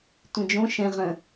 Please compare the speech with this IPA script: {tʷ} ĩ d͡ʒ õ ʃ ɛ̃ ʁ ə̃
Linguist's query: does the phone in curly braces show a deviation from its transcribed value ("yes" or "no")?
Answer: no